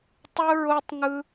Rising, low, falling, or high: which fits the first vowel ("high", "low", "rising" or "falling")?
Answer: high